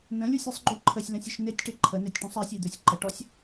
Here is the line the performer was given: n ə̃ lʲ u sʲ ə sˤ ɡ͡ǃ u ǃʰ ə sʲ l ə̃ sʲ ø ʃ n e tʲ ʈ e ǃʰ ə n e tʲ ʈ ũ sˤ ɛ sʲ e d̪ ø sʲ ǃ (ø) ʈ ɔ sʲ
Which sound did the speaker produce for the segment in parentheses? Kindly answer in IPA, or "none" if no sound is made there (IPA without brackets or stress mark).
ə